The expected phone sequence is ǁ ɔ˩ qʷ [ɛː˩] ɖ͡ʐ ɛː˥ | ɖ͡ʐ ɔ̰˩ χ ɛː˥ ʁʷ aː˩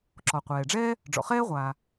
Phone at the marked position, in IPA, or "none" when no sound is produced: ɛː˩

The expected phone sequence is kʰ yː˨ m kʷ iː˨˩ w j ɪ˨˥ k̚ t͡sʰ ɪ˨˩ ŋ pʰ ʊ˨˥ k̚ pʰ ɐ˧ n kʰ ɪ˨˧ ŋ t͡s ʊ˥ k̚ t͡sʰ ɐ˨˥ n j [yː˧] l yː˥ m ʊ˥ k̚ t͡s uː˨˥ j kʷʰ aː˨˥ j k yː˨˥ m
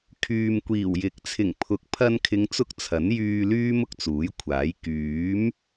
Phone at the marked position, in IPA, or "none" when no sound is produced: yː˧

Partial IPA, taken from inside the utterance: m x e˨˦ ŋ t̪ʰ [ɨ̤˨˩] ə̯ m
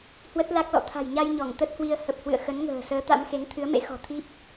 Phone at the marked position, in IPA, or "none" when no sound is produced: ɨ˨˦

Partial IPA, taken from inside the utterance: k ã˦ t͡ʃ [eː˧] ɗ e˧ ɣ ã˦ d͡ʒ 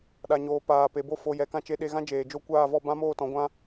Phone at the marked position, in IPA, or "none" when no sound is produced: e˧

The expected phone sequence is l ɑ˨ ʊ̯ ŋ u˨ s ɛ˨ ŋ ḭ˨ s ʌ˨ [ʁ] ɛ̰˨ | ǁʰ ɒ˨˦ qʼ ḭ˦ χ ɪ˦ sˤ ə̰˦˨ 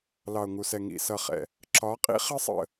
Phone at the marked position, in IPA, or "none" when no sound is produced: χ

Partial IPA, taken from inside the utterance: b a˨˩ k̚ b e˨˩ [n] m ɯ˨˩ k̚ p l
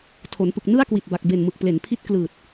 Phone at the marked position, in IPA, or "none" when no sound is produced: n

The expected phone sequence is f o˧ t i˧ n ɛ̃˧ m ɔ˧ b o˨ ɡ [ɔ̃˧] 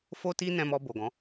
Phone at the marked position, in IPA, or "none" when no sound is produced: ɔ̃˨˦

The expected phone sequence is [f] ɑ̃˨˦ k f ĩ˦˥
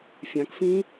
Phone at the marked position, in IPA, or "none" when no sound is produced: fʲ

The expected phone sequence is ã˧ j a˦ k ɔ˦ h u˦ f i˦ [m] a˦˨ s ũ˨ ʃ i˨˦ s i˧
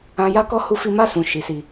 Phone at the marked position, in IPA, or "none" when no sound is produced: m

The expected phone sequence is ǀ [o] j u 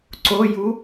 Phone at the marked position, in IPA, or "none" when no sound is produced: o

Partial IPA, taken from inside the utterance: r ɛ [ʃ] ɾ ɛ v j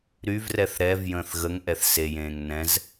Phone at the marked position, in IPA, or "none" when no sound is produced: θ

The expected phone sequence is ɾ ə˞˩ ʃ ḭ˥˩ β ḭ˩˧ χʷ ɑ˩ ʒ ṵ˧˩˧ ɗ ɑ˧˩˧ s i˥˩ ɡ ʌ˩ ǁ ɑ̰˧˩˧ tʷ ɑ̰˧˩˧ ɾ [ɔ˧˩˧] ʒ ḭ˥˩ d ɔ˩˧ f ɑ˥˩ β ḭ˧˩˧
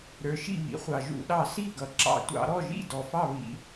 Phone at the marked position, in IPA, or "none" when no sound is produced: ɔ˥˩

